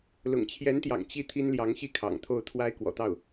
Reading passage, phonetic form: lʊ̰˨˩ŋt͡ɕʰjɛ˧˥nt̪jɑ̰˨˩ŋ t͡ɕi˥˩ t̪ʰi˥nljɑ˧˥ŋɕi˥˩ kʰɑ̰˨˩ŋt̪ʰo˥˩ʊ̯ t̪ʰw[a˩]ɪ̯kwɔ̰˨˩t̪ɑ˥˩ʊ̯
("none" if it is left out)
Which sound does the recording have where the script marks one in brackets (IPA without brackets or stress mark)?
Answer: a˥